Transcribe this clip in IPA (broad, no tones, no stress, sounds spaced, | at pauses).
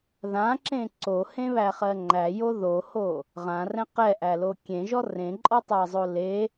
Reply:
ð ã ǁ ẽ ǀ o h ẽ β æ χ ɜ ŋ͡ǃ æ j o ð o h o | ʁ ã r ɛ̃ q ɛ ʔ æ l o kʲ ẽ ʒ ɔ r ẽ ǃʼ ɔ tˤ ɜ zˤ o l e